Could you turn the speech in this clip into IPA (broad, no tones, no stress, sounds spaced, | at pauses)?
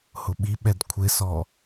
h ʊ ɓ i ɓ ɛ d kʷʰ ɪ s ɔ